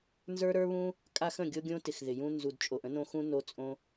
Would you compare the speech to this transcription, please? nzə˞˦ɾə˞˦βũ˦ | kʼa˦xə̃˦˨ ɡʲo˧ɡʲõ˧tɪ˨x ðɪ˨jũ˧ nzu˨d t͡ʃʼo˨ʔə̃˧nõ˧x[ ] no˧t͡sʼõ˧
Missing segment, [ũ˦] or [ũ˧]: ũ˧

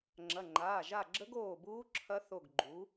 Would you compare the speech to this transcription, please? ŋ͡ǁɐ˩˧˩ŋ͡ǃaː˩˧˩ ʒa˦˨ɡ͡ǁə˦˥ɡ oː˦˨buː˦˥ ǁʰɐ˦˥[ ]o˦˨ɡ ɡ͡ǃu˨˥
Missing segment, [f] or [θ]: θ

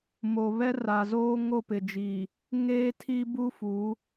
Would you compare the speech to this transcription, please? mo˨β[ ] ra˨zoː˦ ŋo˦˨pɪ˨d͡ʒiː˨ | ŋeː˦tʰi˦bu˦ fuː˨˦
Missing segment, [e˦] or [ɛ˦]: ɛ˦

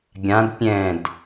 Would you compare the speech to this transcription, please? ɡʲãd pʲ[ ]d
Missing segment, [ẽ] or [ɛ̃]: ɛ̃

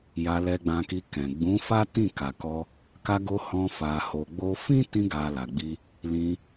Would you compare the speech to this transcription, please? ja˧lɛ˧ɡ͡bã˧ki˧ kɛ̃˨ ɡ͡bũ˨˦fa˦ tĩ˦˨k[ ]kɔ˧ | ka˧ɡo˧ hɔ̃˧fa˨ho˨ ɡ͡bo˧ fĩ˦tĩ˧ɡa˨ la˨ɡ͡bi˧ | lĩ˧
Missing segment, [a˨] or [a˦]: a˨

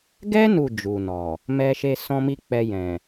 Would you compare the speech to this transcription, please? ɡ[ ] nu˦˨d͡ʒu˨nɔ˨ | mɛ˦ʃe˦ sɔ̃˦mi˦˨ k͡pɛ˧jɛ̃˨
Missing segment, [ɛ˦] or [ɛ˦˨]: ɛ˦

